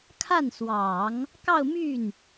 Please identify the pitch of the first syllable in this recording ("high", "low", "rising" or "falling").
falling